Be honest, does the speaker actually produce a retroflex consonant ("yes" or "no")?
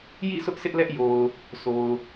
no